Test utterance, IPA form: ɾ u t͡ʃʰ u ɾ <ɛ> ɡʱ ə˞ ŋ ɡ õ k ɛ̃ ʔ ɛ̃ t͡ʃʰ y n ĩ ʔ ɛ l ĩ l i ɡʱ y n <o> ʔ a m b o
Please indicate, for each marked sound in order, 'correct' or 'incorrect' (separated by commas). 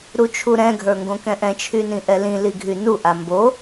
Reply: incorrect, incorrect